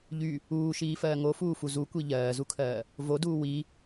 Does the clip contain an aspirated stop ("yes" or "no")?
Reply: yes